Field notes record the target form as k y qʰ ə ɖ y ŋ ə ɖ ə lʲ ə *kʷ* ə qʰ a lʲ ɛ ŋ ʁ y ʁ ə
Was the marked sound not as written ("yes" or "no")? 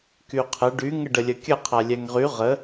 yes